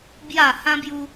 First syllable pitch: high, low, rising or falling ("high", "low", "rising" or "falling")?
low